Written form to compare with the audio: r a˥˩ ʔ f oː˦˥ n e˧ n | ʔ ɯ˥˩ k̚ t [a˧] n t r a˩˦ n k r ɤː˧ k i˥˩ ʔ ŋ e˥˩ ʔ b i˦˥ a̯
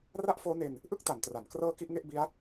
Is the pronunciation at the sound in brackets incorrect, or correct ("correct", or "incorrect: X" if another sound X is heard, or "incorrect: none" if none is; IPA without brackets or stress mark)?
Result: incorrect: a˩˦